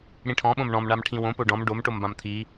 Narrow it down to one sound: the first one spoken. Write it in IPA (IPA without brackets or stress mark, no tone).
ɽ